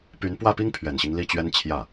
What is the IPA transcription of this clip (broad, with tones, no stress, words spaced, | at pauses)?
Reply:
py˧˥npwä˥˩pi˥ŋ pʰɥɛ˨˩nɕi˦ŋ li˥˩t͡ɕɥɛ˥nt͡ɕʰjä˥˩